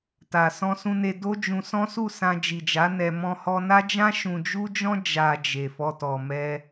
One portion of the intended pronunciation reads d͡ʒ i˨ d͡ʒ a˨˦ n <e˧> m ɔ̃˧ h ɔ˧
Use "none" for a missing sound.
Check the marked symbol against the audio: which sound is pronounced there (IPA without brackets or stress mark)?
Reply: ɛ˧